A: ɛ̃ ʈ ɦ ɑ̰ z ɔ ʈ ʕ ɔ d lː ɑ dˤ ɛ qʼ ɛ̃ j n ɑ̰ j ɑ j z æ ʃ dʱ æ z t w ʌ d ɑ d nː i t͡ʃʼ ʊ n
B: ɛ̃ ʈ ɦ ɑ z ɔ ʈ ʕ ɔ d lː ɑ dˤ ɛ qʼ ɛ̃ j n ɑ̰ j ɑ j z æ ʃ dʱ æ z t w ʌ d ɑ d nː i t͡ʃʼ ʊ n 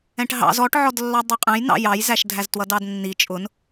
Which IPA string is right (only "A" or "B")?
A